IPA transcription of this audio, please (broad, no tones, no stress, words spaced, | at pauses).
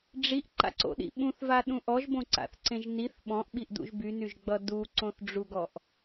ɖ͡ʐiʔǃa̰ǀo̰ɗḭ ɓũθvaɗũ ʔɔʒbõǀa̰θǀẽʒ niθ ɓɔ̃ʔɓiʔdṵʒ bynyʒɡ͡bʌ duǀõθɖ͡ʐuɡɔʔ